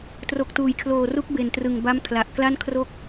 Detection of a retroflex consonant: absent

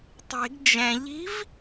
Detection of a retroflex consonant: absent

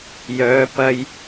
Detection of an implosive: absent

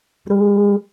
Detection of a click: absent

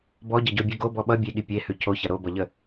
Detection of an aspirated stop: present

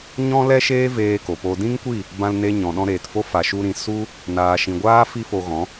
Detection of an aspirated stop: absent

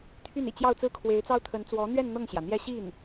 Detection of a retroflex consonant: absent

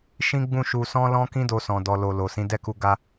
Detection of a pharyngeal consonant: absent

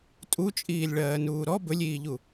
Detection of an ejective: present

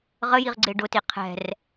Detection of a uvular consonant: present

